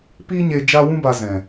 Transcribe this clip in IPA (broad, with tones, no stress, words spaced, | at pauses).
pi˦ɲe˧ d͡ʒa˦ wũ˦ba˧zɛ̃˨